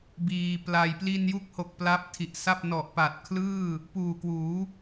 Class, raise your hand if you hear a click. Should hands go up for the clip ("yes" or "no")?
no